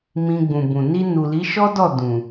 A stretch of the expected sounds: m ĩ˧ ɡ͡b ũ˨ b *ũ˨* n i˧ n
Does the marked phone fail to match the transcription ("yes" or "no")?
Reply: no